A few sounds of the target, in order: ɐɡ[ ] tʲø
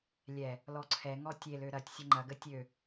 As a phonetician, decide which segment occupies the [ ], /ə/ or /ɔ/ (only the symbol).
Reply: ə